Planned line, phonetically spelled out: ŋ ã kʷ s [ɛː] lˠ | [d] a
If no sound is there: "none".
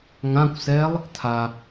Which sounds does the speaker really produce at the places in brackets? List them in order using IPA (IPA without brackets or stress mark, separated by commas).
ɛː, tʰ